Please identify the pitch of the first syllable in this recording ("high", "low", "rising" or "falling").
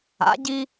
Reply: rising